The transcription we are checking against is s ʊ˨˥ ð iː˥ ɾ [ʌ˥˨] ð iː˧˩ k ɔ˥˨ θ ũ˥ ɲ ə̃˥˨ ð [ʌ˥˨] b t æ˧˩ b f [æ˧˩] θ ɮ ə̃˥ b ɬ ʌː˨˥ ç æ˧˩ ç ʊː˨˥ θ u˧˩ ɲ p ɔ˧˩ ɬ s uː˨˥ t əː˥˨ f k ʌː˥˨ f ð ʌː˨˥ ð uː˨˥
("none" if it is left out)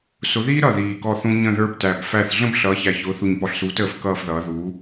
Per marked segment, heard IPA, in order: ʌ˥˨, ə˞˥˨, æ˥˨

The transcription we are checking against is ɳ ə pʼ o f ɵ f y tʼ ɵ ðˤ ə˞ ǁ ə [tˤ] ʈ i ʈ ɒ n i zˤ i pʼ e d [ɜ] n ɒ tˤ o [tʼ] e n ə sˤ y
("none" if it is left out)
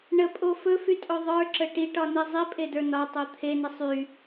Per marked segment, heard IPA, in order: none, ə˞, t̪ʰ

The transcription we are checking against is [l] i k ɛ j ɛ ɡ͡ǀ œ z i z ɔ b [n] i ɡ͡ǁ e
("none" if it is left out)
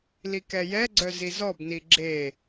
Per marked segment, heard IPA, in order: l, n

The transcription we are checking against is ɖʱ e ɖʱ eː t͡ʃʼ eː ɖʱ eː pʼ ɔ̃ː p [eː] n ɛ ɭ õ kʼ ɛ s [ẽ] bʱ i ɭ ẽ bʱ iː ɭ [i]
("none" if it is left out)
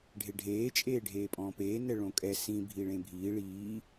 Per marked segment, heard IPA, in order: eː, ĩ, iː

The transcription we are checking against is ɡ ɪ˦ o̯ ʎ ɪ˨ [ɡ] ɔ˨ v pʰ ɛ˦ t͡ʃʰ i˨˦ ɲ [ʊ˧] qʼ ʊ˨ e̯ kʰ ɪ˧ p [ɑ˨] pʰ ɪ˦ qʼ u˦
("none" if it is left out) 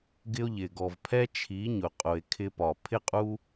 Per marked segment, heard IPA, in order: ɡ, ʊ˨, ɒ˨

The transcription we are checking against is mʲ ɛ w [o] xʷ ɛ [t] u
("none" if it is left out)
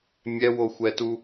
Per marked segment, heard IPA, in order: o, t

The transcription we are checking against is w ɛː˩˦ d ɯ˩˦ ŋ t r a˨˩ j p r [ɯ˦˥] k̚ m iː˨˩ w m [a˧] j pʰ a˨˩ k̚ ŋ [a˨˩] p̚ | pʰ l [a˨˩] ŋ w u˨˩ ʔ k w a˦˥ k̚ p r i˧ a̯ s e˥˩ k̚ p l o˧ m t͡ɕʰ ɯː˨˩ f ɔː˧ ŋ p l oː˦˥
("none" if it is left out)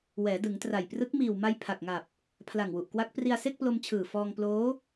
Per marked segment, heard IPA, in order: ɯ˦˥, a˧, a˨˩, a˨˩

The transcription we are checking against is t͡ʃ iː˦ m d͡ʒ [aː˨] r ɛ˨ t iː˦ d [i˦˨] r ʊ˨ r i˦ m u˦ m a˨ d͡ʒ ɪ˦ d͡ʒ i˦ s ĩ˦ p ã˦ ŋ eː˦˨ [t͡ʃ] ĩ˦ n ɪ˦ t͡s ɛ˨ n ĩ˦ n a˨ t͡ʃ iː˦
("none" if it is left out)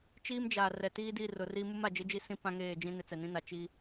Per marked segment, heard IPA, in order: aː˨, i˦˨, d͡ʒ

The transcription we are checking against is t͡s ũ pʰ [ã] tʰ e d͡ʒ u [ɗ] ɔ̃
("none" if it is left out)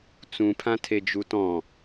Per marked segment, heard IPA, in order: ã, t

